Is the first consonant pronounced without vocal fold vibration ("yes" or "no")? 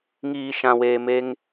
no